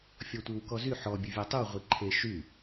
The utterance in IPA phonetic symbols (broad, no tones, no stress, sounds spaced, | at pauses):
fʲ ɔ tʷ i w k ɔ z y ħ ɔ bʲ u vʲ a tˤ y w ʁʷ i ǃʰ e ʃ y